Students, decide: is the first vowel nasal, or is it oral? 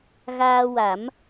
oral